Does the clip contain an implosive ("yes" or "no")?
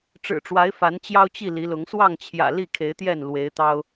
no